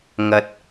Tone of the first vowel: low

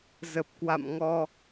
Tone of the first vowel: low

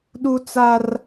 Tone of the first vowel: high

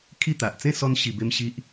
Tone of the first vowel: falling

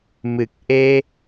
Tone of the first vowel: low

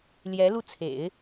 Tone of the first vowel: rising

